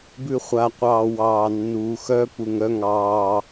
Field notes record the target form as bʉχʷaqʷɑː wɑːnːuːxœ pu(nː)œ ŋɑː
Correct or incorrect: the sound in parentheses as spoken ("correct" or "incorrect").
incorrect